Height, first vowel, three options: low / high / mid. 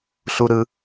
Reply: high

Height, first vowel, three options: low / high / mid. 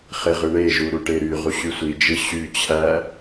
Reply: mid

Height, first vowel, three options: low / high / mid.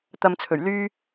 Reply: low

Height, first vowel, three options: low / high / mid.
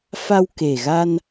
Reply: low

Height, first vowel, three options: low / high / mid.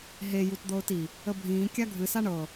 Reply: mid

